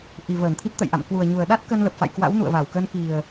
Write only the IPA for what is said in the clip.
ʔ i˨˩ v əː˧˩ n t̪ʰ i˦˥ p̚ t̪ ə̰˧˨ j ʔ a̰˧˨ m k w u˨˩ ə̯ ɲ u˨˩ ə̯ ɗ a˦˥ t̚ k ə˧ n l ə˨˩ p̚ f a̰˧˨ j k w a̰˧˥ w n ṵ˧˨ ə̯ v a˧˩ w k ə˧ n k i˨˩ ə̯

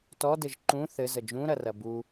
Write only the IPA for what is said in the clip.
t ɔ d ɘ ʒ ǃ ũ θ ɘ z ə d͡ʒ ũ ɾ ɐ r ɐ b u

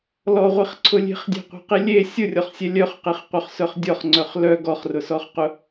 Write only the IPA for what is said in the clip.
l ɔ ʁʷ i χ ǀʰ ʊ lʲ e̤ χ dʲ ɛ̤ qʷ e̤ q i lʲ e sʲ ʊ rʲ ɔ χ sʲ ɛ lʲ œ χ q i χ qʷ œ χ s œ χ dʲ ɔ χ ŋ͡ǀ œ χ l œ ɡ ɔ χ r ʊ s ɔ χ q ʊ

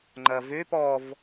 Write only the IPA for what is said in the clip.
ŋ͡ǃ ɐ v ø p ɔ v

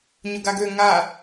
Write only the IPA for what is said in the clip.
ɲ ʊ ɡ a ɡ ø ŋ a

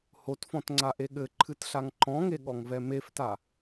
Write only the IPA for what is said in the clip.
h o t f ɔ̃ t ŋ͡ǀ a ʔ e ɠ ɘ ǃʰ ɨ t ɬ a ŋ ǃ ɔ̃ ŋ e ɠ ɔ ŋ v ɛ m e f t a

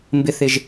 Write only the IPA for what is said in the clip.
m b ɪ θ ɪ ʒ

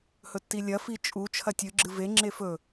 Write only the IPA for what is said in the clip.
h ɵ tː i lʲ ɐ f i t͡ʃʼ u t͡ʃʰ ɐ tʲ ɨ ɡ͡ǁ ɨ v e ŋ͡ǁ e f ɵ

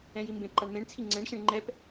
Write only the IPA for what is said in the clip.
ɛ̃ j i m b ẽ p ǃ a ɳ m ẽ ɳ t͡sʰ i ŋ͡ǀ ɛ̃ ɳ ɕ ẽ ɳ ŋ͡ǃ ɛ p

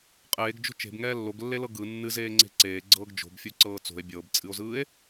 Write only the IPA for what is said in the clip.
qʼ eː ɡ d͡ʒ o̤ t͡ʃ e̤ b ŋ ɛː lː o ɡ lː e l ɤ ɡ ɯ nː ɨ z eː ŋ͡ǀ e̤ ǀ eː ɡ͡ǀ ɤː ɡ d͡ʒ o̤ b fʲ u ǀ ɤː t͡s o̤ e̯ bʲ ɤː b t͡sʼ ɨ o̯ z ɯː e̯

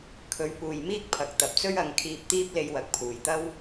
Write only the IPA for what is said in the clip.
kʰ ɵ˨˧ ɥ p uː˨ j m iː˥ k̚ pʰ ɐ˨ k̚ t̪ ɐ˨˥ p̚ t͡s ɵ˥ ɥ ɐ˨˧ ŋ kʰ iː˧ p̚ t̪ iː˥ p̚ l e˧ j w ɐ˨˥ k̚ pʰ uː˨˩ j t̪ ɐ˥ w

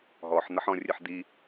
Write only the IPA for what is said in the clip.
ɦ ɔ ħ n̪ ɐ ħ ɔ̃ rʲ ɨ ħ d̪ i

